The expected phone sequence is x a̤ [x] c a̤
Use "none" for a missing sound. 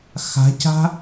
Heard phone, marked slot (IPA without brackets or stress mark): none